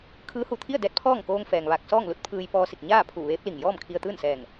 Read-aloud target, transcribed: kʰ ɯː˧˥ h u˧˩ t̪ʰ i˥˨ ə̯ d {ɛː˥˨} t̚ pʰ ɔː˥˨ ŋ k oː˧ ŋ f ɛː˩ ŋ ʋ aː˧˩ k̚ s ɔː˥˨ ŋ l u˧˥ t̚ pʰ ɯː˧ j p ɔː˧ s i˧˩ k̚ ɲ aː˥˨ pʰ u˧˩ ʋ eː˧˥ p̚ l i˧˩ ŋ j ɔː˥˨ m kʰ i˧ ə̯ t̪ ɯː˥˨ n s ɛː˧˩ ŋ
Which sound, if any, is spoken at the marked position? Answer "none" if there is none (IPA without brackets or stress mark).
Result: ɛː˧˥